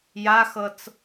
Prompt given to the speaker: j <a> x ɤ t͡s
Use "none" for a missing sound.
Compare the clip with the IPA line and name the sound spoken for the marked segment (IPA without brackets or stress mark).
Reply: a